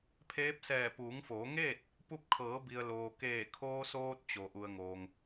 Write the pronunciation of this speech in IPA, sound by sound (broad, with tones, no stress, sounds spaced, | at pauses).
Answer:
pʰ eː˧˥ p̚ s ɛː˧˩ p uː˩˧ ŋ f oː˩˧ ŋ eː˥˨ t̚ | p u˧ p̚ kʰ ɤː˩˧ b i˩ ə̯ l oː˩ k eː˧˩ kʰ oː˧ s oː˧ t̚ t͡ɕ o˩ ʔ u˩ ə̯ ŋ oː˩ ŋ